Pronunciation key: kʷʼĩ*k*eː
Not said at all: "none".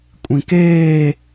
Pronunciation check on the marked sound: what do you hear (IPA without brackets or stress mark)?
k